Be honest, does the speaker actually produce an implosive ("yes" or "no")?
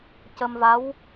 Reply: no